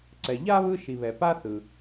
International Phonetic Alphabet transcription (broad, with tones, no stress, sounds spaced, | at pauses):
ǀ ɛ˨ ʎ a˥ β ɯ˦ ʃ i˨ β ɛ˨ p a˦ θ ɯ˩